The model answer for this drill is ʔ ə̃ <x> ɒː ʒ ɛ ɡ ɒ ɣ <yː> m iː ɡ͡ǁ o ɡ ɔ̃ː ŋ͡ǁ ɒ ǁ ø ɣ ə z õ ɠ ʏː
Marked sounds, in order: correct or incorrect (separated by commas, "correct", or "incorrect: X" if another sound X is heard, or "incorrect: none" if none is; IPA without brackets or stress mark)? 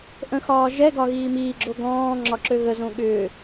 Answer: correct, incorrect: iː